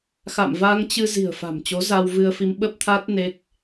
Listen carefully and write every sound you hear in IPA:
x a̰˧˨ m v a˧ ŋ t͡ɕ ɨ˧ z i̤˨˩ ə̯ f a̤˨˩ m t͡ɕ o˨˦ z a˧ w v ɨ˧ ə̯ f i˧ m ɓ ə˦˥ p̚ t̪ʰ a˦˥ t̚ n e˦˥ k̚

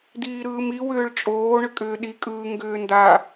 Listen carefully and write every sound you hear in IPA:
d iː ɾ ɯː m i w ʏː ɭ t͡ʃʼ oː ɳ ʏ kʼ ʏː ɗ i kʼ ɯː ŋ ɡ ʏː n d a

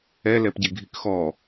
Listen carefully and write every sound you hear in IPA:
ɛ l ɛ p ɟ e ɡʱ i k x ɔ

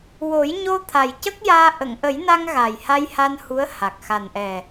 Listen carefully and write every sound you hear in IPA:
w o˨˩˦ j ɲ o˧ t̪ʰ a˨˩ j c ə˦˥ k̚ j aː˧ ʔ ə˨˩˨ ŋ ʔ ə˨˩˦ j n a˧ ŋ ɣ a˨˩ j h a˧ j h a˧ n h u˧˥ ə̯ h a˨˩ k̚ x a˨˩ n ʔ ɛ˨˩

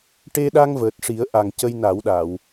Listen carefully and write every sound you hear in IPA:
ʈ e˧ ɗ a˧ ŋ v əː˨˩ t̚ ʂ i˨˩˦ ə̯ ʔ a˨˩ ŋ c ə˧ j n a˨˩˦ w ɗ a˨˩˨ w

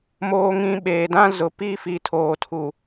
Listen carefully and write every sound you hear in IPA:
m oː˨ ŋ ĩ˨ ɓ eː˨ d ã˦ z ʊ˨ p i˦˨ f i˨ tʰ oː˨ tʰ u˨

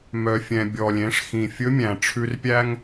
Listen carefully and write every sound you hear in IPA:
m œ˩ fʲ ɛ̃˩ bʲ ɔ˩ lʲ ẽ˩˧ ʂ x ĩ˩ fʲ ɵ˧˥ mʲ æ̃˩ ʈ͡ʂʰ ʉ˧ r pʲ æ˥ ŋ

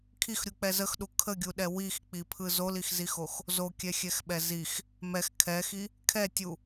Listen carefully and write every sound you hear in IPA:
kʰ i x ɾʲ u k͡p ɛ z ə x ɗ u kʰ ə ɡʲ u ɗ ɛ w i x k͡p i pʰ ɯ z o l i x z i x o x | z o kʲ ɛ xʲ ɛ x ɓ ɛ z i x | m ɛ x kʰ ɛ x i | kʰ ɛ tʲ u

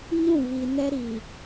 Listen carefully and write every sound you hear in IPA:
ɲ ũ˦˨ β i˨ n ɛ˦ ɾ i˨

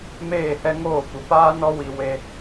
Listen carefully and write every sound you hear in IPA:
m eː˦˨ h ɛ˦ ŋ oː˦˨ kʷ ə˨ p aː˦ n ɔ˦ w i˧ w e˧

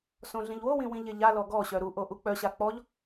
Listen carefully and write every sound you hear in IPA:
s õ ɮ ĩ ʎ w o w ĩ w ĩ ʎ e ʎ a l ɔ ɡ ɔ ɕ œ ɾ u ʔ o ʔ u k͡p œ ɕ a k͡p ɔ ʎ

